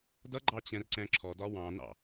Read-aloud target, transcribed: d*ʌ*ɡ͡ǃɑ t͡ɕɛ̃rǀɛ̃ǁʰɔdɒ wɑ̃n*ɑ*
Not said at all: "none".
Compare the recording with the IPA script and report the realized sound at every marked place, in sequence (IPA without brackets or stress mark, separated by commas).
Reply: ʌ, ɑ̰